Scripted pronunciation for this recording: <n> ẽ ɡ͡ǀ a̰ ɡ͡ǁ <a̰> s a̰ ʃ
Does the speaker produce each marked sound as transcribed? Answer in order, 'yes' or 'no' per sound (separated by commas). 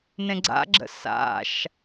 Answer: yes, no